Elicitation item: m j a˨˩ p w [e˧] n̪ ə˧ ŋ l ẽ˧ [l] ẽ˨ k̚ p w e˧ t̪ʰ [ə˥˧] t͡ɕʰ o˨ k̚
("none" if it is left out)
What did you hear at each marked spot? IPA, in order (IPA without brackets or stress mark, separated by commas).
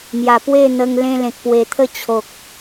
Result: e˥˧, l, ə˥˧